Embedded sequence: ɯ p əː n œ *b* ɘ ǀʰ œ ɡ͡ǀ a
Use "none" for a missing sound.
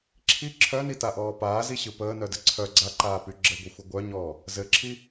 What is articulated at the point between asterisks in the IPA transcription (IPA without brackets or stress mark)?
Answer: d